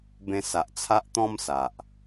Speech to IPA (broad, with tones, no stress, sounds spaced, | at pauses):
b ẽ˧ s a˨ ʔ t͡sʰ a˦ ʔ t̪ ɔ̃˦ m s a˨ ʔ